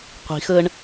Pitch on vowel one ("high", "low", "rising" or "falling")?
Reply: rising